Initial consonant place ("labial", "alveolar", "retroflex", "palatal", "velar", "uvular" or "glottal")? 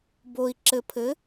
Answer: labial